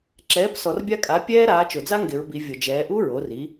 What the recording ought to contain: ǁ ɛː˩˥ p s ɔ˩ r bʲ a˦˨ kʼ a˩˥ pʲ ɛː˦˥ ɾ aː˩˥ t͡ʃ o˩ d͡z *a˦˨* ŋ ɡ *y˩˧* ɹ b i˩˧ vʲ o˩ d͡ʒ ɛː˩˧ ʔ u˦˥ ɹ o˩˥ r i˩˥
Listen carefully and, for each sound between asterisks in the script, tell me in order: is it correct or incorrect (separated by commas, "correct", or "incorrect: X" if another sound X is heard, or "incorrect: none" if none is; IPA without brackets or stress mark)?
incorrect: a˦˥, incorrect: ɪ˩˧